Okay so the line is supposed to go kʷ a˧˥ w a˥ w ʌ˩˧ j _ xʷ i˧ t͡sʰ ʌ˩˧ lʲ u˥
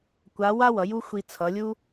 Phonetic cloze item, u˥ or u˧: u˥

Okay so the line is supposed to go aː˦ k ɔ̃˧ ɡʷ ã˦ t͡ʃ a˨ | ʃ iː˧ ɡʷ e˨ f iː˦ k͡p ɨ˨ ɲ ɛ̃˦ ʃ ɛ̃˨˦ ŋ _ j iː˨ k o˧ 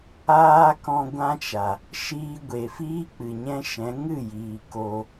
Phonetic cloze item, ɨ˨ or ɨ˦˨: ɨ˦˨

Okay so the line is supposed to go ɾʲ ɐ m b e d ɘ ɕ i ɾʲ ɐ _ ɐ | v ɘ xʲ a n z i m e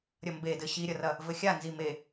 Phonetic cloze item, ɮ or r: r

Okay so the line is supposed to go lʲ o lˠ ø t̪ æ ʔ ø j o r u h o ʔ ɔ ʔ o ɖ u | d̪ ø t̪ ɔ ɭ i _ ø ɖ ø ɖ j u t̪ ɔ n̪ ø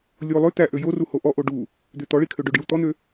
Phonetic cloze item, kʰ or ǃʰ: kʰ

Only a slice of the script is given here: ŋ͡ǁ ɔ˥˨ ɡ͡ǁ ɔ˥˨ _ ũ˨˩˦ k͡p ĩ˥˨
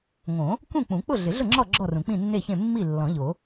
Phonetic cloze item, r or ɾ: r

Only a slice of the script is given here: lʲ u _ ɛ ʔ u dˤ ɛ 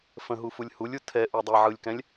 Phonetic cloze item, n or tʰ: tʰ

